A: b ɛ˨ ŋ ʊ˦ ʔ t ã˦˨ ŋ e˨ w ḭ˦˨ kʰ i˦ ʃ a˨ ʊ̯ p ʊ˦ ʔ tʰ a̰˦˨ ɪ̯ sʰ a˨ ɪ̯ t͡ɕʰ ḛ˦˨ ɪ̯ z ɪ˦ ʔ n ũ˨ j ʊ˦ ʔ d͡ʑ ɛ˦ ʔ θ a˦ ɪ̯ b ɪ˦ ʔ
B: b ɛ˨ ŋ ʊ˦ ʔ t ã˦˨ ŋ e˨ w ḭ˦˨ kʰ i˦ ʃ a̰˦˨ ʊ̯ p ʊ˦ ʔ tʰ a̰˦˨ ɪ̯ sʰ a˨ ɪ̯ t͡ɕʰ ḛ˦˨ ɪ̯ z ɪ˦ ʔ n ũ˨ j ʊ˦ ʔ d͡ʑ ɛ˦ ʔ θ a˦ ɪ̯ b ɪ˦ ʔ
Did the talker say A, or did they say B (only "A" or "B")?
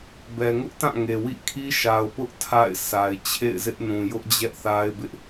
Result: A